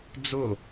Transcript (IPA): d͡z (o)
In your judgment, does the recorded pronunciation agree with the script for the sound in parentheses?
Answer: yes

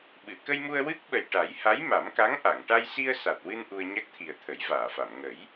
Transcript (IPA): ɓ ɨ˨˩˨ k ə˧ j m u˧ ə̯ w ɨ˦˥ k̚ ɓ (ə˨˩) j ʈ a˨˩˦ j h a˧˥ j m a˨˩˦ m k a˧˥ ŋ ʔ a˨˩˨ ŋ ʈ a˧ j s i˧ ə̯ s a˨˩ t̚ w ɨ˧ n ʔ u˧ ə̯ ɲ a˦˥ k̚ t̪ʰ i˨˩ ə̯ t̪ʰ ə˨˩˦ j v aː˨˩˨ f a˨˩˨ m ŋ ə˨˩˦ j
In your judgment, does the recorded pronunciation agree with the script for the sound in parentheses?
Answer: yes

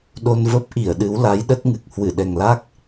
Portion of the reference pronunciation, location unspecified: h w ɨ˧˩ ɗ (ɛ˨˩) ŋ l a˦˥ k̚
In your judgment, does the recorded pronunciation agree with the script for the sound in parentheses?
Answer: yes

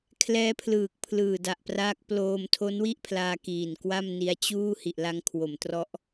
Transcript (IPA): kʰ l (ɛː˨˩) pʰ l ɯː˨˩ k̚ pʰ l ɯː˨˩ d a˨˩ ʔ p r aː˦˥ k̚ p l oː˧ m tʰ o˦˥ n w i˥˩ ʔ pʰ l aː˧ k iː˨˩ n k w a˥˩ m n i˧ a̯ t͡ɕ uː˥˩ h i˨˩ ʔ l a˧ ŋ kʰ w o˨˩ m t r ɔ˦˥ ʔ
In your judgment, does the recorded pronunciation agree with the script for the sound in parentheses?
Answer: no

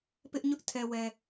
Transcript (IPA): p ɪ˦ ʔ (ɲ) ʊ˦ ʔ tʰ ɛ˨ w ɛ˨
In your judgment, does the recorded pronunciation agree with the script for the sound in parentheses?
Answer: yes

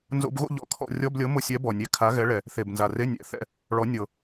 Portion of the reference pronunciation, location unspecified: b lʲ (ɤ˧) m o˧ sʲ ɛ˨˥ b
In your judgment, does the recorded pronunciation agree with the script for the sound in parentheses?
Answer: no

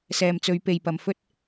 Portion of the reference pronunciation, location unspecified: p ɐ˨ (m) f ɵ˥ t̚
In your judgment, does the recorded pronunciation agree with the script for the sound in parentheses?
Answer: yes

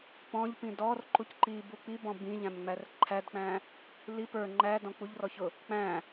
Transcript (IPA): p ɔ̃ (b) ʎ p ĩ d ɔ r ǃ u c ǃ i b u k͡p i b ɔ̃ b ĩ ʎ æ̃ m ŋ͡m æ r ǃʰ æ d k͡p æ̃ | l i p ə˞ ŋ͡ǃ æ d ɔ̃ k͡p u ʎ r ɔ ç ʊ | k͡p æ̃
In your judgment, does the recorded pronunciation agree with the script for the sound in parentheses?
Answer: no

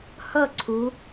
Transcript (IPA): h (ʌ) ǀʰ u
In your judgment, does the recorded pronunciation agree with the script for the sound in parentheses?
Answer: yes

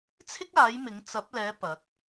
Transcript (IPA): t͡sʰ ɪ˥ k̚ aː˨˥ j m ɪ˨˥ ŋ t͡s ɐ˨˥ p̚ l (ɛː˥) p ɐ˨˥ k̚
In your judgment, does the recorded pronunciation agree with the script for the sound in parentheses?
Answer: no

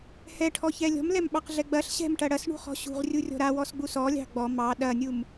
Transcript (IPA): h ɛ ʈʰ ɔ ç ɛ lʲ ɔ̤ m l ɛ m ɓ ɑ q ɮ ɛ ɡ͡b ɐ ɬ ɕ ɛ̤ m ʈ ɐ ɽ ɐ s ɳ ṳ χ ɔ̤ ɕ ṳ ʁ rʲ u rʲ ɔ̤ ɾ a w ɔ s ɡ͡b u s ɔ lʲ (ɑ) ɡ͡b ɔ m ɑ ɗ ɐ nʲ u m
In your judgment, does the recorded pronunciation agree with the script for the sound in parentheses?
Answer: no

